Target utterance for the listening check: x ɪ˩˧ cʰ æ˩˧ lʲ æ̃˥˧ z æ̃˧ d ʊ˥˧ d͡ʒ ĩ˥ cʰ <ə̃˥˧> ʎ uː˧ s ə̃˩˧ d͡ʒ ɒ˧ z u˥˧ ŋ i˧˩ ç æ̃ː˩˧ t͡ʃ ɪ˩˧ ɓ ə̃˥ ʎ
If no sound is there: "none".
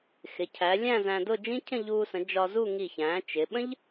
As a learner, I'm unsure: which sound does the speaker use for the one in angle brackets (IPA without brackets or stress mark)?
ə̃˥˧